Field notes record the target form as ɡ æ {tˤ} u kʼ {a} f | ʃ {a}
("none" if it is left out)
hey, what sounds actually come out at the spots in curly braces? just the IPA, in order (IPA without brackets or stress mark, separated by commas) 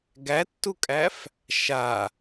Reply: tː, æ, a